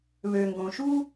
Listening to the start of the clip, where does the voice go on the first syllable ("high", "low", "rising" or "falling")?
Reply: low